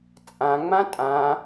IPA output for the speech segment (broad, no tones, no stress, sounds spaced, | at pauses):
t͡sʼ ã ŋ͡m ã tʼ ã